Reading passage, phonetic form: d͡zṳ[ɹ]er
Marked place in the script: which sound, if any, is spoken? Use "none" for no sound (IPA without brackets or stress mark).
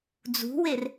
w